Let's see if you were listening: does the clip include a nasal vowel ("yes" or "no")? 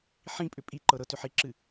yes